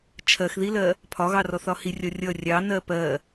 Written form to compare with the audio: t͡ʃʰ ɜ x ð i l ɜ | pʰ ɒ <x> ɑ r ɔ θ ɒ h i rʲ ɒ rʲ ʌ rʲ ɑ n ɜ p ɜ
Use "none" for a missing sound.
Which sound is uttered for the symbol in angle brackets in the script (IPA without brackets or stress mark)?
ɣ